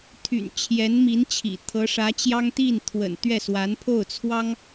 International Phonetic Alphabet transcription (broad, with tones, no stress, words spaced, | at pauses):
t̪ʰy̰˨˩n t͡ɕʰjɛ˧˥nmi˧˥nt͡ɕʰḭ˨˩ t̪ʰɤ˧˥ʂä˧˥t͡ɕjɑ˥ŋ t̪i˥˩n t̪ʰwə̰˨˩n t̪ɥɛ˥˩swa˧˥npʰo˥˩ʊ̯ t͡sʰwɑ˥ŋ